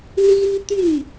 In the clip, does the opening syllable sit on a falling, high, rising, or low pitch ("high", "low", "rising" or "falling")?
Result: high